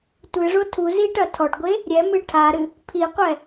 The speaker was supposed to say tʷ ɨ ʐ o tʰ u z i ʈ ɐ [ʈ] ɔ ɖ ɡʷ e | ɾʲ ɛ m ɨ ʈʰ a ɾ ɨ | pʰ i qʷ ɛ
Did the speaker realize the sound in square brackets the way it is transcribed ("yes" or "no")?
no